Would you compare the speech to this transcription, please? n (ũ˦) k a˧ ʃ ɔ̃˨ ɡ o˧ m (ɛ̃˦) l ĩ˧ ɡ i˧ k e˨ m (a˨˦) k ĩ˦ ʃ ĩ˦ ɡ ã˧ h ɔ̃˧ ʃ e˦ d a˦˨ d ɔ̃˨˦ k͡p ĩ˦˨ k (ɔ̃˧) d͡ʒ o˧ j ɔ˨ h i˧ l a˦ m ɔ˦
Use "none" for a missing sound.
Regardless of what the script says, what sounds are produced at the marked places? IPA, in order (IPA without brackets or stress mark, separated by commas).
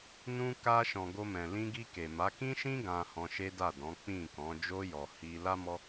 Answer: ũ˧, ɛ̃˨, a˨˦, ɔ̃˨˦